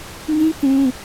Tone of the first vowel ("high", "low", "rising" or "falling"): high